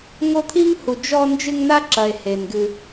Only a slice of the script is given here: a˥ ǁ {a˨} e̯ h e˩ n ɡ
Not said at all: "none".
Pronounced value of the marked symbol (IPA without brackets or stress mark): ɐ˨